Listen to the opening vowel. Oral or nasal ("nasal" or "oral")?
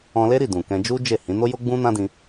nasal